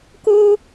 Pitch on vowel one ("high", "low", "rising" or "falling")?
high